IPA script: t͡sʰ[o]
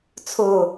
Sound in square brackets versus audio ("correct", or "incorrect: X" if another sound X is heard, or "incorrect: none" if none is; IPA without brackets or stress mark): correct